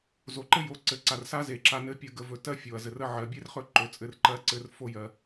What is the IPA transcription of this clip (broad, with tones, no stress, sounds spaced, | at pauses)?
z o˨ ǃ ɘ˦ j o˨˦ ǀ ɘ˨ ǀ a˨ r s a˦ z e˨ ǁ a˧ n ɘ˦ pʲ ə˦˨ ɡ ə˧ v ɵ˨ t ɜ˦ fʲ o˨ ɐ̯ z ɘ˨ r ə˦ ʕ ɜ˨ bʲ e˦ r χ ɵ˦˨ ǃ ɵ˨˦ t͡sʼ ɘ˧ r ǃ ɜ˦ ǀ ɘ˧ r f o˦ j ɜ˧